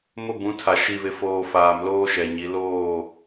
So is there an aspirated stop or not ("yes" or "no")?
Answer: yes